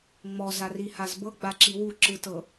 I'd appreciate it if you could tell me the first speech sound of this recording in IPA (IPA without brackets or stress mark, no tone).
ŋ͡m